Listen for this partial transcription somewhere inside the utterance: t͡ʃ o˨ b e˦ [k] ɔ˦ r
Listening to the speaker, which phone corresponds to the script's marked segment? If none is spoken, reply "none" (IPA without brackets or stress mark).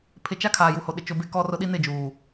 k